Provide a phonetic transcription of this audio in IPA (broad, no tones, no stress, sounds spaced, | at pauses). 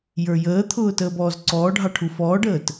j ə˞ j əː t̪ʰ ʊː t əː b ɔː z ǀ ɔː ɖʱ ɑ ʈʰ u f ɔː ɖ əː t